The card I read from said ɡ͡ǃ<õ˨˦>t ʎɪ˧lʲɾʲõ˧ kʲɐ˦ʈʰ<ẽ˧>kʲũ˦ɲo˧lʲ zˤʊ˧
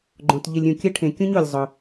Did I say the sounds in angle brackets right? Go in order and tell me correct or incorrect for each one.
incorrect: õ˧, correct

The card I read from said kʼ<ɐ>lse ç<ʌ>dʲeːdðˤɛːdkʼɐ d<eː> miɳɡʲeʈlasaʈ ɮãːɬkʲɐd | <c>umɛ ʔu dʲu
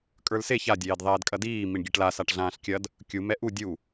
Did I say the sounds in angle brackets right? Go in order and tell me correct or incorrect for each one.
incorrect: ə˞, incorrect: a, incorrect: iː, incorrect: kʲ

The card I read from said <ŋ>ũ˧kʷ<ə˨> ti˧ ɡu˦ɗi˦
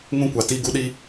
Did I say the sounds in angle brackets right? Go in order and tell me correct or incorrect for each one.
correct, incorrect: a˨

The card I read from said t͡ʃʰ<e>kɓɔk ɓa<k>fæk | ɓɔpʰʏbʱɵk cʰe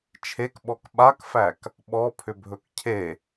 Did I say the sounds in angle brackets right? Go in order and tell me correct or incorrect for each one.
correct, correct

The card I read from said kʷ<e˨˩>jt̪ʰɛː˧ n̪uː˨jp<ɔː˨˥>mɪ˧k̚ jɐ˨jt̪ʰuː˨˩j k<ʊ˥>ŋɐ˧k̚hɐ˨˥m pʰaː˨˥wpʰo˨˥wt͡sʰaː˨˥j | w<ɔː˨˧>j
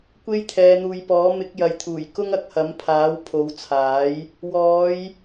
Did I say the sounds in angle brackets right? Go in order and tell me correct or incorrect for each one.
incorrect: e˥, correct, correct, correct

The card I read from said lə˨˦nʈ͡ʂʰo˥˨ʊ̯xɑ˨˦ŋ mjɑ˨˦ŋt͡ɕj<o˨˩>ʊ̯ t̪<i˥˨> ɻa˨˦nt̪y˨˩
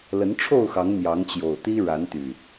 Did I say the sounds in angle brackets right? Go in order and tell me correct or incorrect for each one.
correct, incorrect: i˦

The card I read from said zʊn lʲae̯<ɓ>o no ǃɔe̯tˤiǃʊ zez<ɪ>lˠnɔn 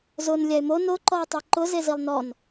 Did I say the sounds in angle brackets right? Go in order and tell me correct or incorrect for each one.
incorrect: m, incorrect: i

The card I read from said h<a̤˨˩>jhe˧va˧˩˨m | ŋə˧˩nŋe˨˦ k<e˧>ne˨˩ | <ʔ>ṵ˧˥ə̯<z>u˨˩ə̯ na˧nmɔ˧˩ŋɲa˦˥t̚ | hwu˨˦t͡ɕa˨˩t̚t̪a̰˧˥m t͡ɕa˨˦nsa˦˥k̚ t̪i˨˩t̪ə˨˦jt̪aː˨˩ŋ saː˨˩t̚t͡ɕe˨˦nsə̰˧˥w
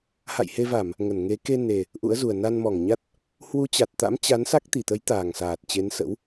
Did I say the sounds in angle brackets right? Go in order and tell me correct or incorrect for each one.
incorrect: a̰˧˨, correct, correct, correct

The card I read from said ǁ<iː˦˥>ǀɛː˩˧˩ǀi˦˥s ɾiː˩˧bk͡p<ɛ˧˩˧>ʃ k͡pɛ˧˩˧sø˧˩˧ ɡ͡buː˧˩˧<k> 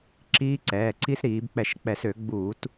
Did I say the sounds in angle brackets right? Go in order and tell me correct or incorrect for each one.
correct, correct, incorrect: t

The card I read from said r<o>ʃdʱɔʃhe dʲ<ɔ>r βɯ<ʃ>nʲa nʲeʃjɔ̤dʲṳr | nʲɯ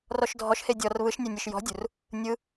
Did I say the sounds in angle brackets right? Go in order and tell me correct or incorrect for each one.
incorrect: ɔ, correct, correct

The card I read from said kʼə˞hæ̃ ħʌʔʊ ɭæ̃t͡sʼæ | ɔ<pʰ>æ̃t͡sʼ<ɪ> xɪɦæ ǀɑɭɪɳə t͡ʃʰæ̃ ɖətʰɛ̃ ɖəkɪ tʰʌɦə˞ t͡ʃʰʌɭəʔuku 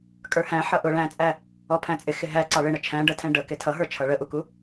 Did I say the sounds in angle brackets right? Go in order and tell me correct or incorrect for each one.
correct, correct

